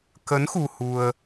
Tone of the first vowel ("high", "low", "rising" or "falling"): rising